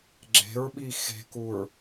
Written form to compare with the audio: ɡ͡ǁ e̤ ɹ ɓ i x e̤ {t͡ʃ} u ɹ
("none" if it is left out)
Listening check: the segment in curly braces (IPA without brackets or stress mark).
k